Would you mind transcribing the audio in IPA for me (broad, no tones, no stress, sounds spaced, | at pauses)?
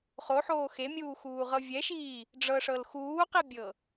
χ o ħ oː x e mʲ uː x uː ʁ ɤ vʲ ɛ ʃ iː | ɖ͡ʐ ɤ ʂ ɤ l x uː q i bʲ ɤ